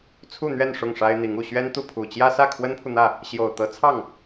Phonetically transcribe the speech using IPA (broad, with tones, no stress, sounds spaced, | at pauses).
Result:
t͡sʰ u˥˧ n̪ ɥ ɛ˥˧ n ʂ ʊ˥˩ ŋ ʂ a˥ ɪ̯ n̪ i˧˥ ŋ u˨˩ ɕ ɥ ɛ˥ n t̪ u˥˩ pʰ u˨˩ t͡ɕ j ä˥ s ä˥˩ kʰ w ə˥ n pʰ u˨ n̪ ä˥˩ | ɕ j o˨˩ ʊ̯ t̪ ɤ˧˥ t͡sʰ ɑ˥˩ ŋ